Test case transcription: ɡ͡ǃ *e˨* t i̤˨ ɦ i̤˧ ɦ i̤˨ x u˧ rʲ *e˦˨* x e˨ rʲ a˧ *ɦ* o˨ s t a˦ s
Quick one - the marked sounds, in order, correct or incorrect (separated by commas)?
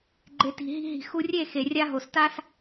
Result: correct, correct, correct